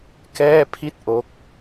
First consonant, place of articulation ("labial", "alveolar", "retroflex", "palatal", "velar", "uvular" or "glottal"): velar